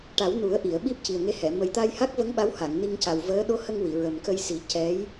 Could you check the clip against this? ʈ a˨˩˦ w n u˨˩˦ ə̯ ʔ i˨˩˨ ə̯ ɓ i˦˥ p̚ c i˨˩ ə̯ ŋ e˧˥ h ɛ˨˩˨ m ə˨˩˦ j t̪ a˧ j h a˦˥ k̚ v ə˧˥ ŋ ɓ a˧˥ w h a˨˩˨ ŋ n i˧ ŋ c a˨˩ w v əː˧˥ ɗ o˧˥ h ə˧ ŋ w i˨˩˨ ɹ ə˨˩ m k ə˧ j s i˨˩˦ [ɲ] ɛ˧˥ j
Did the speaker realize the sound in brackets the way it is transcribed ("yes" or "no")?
no